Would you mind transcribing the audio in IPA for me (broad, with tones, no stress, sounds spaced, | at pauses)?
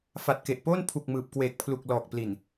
f a˨˩ t̚ k e˨˩ ʔ p oː˥˩ n pʰ u˨˩ k̚ m ɯː˨˩ p̚ k w eː˨˩ k̚ pʰ l u˨˩ k̚ l ɔː˨˩ k̚ p l i˨˩ n